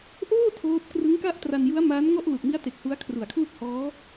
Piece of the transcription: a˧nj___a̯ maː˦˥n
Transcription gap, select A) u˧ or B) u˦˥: B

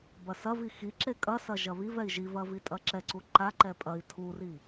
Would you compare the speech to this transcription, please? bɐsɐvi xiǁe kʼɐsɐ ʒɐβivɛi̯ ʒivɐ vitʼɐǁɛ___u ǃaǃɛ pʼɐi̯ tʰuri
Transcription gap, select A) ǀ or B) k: A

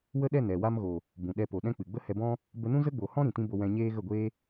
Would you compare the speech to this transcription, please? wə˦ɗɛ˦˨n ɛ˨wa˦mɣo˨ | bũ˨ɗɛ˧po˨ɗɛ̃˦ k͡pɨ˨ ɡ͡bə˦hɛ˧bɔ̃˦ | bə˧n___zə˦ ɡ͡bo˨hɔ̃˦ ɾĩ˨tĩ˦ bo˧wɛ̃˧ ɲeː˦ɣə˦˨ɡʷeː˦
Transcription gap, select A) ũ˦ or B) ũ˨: A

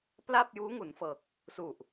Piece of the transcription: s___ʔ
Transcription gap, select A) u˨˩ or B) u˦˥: A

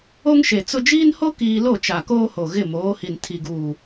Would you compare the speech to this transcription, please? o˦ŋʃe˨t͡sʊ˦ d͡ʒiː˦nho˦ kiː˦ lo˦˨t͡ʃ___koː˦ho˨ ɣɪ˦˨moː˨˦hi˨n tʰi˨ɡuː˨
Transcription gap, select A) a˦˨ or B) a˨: B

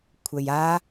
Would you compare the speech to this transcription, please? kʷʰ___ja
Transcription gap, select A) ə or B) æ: A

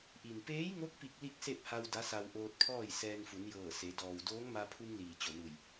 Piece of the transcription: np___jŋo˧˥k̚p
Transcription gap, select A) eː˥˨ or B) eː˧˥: B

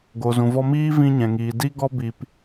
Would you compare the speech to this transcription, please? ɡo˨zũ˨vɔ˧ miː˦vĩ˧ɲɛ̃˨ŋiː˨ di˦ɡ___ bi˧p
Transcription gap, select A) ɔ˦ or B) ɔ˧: A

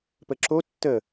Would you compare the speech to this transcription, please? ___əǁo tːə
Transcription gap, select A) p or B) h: A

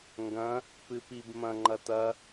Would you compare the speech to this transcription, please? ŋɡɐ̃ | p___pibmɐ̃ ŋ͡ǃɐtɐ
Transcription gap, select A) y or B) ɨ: B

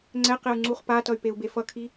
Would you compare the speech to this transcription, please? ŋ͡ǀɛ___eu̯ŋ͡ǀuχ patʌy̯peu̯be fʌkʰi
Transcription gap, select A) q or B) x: A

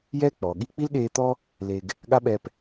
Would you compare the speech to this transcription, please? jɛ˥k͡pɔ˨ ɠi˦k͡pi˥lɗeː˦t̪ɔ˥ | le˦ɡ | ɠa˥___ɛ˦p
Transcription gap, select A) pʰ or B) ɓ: B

